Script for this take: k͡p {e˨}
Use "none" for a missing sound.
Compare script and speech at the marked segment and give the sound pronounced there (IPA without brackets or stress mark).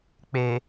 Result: e˨